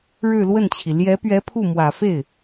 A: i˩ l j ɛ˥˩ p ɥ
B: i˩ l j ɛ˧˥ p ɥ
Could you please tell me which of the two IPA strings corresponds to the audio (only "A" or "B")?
B